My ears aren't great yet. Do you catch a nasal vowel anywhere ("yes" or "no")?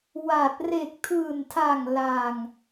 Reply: no